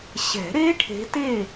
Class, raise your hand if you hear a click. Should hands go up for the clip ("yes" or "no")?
no